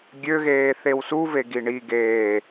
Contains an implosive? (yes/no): no